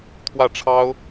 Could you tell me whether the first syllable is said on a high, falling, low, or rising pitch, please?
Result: falling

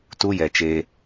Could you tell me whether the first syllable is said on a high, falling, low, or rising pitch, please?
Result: high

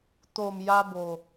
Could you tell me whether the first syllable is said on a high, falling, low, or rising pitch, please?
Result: low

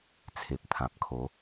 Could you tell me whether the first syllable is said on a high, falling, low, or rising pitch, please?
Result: low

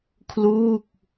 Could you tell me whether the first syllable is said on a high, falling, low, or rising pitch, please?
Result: falling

